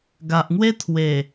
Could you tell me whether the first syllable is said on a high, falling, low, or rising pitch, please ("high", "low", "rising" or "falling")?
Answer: low